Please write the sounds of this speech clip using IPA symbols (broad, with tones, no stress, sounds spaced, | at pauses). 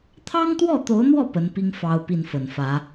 t̪ʰ ɑ˥ ŋ t̪ w ɔ˥˩ t̪ o˧˥ ʊ̯ n̪ w ɔ˥˩ p ə˧˥ n p i˥ ŋ f ɑ˥ ʊ̯ p i˥˩ n f ə˨˩ n f ä˧˥